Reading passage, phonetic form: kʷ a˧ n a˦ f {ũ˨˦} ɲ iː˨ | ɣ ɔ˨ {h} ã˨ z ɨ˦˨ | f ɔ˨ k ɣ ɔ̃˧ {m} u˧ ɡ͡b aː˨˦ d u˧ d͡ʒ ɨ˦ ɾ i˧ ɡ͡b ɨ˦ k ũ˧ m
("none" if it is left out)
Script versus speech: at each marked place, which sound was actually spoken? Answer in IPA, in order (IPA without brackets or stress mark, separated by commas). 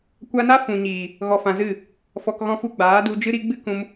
ũ˨, f, f